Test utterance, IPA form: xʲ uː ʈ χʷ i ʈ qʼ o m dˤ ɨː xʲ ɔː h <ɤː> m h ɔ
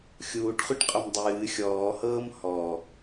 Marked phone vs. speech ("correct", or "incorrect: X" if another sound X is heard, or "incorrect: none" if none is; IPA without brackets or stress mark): correct